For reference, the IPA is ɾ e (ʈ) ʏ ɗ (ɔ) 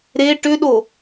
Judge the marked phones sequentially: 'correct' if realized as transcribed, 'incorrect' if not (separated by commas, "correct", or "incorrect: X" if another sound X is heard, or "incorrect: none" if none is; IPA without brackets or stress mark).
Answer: correct, incorrect: o